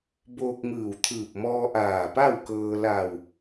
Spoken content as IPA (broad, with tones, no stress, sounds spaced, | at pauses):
b oː˧ k̚ ŋ ɯː˧˩ w t̪ʰ ɯː˧˩ p̚ m ɔː˧ ʔ aː˧˩ p a˥˨ w k ɤː˧ l a˧˩ w